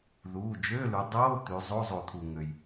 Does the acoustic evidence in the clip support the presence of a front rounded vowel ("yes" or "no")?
yes